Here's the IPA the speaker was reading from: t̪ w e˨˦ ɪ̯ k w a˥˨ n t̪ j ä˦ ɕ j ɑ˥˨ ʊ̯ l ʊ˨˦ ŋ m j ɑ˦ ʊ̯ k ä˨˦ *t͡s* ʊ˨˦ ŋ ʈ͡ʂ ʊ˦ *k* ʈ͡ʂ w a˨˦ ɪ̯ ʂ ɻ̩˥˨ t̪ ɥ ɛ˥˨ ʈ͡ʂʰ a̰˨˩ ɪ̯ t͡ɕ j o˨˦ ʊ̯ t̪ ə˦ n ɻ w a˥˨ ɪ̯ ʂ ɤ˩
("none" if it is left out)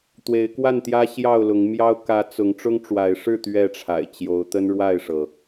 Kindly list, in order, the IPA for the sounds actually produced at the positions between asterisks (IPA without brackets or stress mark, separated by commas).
t͡s, ŋ